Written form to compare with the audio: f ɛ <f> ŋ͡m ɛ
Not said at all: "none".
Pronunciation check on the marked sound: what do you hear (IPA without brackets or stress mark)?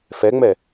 none